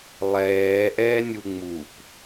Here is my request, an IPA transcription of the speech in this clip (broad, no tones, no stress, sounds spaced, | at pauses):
lˠ ɛː ʔ ɛː nʲ u ŋ͡m u p